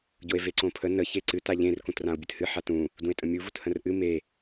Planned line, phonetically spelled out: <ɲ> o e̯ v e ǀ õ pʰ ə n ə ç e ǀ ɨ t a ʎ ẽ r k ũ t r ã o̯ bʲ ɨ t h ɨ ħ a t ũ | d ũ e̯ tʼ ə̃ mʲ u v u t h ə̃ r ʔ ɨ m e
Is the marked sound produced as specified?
no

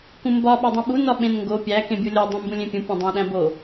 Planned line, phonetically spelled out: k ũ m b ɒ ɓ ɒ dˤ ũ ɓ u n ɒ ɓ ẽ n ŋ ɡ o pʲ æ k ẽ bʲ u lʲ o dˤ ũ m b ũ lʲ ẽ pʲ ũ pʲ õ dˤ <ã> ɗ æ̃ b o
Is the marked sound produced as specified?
no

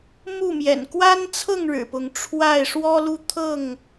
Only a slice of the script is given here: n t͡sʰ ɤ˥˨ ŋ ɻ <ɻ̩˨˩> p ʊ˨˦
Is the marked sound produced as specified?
yes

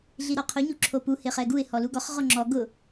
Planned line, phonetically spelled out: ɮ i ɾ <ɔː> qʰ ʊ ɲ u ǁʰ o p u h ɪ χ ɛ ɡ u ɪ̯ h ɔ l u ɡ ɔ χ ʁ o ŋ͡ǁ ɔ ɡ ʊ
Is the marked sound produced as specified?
no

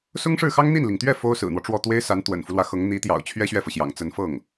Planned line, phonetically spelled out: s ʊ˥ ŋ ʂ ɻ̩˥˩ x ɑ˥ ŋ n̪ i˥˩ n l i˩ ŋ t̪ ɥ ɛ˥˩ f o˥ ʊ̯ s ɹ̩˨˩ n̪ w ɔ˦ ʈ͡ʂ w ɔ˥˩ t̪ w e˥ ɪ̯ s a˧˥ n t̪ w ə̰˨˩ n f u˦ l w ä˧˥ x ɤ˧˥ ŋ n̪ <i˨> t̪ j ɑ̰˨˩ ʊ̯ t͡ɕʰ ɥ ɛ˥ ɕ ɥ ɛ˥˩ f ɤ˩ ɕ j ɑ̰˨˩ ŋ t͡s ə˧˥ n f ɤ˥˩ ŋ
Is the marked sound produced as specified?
no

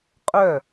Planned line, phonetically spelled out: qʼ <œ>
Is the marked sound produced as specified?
yes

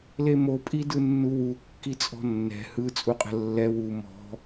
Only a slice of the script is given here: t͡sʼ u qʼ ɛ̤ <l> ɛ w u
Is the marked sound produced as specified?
no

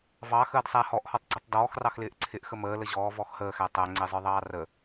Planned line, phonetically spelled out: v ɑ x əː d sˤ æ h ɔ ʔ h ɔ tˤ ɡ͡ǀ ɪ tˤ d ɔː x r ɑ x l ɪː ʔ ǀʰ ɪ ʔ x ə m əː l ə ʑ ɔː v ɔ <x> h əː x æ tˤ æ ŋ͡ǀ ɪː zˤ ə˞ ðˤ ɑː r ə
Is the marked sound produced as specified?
yes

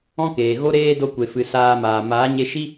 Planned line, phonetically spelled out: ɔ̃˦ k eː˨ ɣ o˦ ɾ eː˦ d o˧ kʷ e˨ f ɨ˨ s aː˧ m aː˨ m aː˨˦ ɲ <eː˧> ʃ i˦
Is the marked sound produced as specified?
no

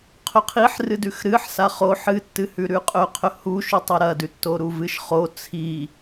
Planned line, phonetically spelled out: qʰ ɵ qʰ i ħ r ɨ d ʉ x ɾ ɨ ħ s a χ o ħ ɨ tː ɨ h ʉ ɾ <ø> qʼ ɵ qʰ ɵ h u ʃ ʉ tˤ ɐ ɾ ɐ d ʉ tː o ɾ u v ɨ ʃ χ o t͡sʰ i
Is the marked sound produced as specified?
no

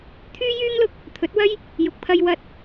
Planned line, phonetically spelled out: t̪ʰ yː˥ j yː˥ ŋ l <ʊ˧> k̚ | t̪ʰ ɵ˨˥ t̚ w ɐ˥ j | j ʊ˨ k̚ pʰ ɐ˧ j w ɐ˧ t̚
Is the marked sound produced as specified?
yes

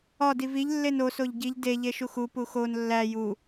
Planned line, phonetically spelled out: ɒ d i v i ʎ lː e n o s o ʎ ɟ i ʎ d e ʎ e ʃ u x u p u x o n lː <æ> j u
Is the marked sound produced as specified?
yes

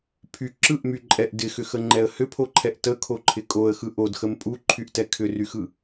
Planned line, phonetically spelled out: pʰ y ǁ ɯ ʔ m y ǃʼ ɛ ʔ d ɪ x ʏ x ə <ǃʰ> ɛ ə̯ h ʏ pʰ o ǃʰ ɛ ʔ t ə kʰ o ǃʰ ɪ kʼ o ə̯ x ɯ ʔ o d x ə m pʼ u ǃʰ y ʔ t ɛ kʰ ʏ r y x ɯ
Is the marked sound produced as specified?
no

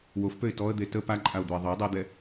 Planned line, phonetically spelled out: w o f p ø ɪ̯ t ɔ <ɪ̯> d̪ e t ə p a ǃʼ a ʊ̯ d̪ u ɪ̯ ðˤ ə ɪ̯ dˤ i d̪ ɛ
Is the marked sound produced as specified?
no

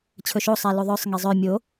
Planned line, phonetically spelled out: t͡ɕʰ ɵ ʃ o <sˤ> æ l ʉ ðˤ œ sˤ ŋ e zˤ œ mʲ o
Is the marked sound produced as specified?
yes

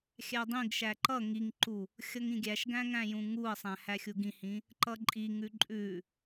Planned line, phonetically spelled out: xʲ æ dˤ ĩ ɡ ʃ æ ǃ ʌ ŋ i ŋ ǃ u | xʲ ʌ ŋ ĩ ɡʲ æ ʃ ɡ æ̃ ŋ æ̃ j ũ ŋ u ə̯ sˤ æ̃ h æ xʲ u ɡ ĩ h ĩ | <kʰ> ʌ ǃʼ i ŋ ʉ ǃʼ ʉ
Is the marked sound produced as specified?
no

